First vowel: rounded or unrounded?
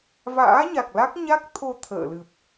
unrounded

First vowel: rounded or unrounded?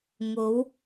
rounded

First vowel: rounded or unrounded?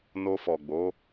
rounded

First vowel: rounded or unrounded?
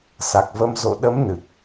unrounded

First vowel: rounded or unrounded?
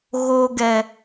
rounded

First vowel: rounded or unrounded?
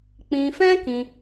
unrounded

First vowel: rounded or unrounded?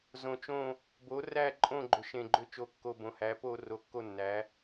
rounded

